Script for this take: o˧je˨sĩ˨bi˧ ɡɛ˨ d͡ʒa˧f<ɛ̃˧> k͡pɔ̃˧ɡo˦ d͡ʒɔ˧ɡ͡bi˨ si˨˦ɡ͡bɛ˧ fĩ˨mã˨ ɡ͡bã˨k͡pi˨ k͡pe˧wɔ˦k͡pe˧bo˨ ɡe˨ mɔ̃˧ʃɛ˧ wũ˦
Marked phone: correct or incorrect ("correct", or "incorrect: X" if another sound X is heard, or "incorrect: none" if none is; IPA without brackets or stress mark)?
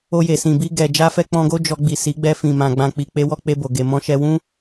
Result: incorrect: ɛ˧